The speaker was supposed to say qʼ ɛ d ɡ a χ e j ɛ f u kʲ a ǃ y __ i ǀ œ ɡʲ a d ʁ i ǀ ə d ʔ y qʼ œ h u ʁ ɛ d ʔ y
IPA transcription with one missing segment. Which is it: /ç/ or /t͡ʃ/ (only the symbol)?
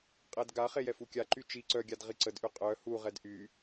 t͡ʃ